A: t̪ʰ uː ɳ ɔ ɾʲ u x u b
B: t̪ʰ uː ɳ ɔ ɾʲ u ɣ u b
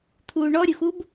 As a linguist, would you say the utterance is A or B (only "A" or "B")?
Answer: A